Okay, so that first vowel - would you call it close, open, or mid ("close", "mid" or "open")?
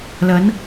open